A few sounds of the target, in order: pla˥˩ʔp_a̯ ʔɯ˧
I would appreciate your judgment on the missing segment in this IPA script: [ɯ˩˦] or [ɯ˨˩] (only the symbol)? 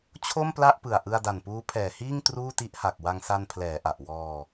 ɯ˨˩